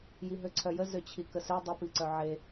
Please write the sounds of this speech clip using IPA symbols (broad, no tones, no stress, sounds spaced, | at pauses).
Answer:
j i ɦ ø ǀʰ œ j ə z ø t͡ɕʰ i k ə s ø dˤ ə p i ǀ œ ʕ e